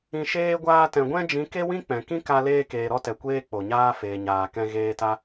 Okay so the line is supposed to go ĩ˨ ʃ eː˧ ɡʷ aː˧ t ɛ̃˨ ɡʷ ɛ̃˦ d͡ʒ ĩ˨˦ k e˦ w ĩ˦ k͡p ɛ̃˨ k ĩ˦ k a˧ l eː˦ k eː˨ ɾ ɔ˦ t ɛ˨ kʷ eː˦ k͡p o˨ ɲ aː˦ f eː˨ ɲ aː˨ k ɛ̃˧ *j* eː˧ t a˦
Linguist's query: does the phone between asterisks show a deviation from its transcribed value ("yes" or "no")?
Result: yes